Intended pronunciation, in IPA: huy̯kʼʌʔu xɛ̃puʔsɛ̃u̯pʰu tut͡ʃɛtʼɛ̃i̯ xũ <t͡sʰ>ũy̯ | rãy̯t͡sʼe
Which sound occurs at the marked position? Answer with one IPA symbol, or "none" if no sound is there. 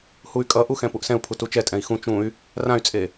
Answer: t͡ʃ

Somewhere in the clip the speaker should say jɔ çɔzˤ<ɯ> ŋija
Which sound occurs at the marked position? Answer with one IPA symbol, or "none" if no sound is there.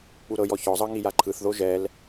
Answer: ɤ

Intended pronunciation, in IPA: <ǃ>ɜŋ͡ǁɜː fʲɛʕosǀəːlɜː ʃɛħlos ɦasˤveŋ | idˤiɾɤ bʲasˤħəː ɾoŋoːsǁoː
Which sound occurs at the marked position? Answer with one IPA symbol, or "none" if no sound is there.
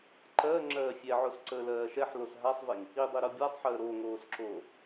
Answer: ǃ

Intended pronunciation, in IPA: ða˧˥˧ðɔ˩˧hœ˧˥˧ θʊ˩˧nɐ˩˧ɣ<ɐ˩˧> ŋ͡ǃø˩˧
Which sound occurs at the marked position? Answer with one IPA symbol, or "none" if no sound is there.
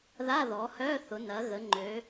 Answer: ə˩˧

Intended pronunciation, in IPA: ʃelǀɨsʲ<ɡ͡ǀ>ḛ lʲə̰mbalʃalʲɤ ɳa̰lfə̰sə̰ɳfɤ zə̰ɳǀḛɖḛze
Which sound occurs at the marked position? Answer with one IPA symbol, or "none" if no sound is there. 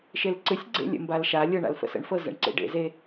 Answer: ɡ͡ǀ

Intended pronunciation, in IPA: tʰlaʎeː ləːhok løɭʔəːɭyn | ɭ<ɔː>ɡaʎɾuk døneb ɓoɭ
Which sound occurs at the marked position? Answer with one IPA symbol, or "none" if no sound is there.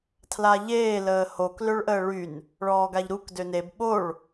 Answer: ɔː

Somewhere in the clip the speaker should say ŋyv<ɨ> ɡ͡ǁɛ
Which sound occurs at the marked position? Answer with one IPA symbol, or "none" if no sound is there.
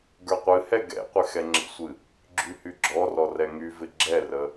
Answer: ɪ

